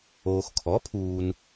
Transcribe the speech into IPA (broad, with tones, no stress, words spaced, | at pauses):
oː˨xkʰɔ˩˥pʰuː˨n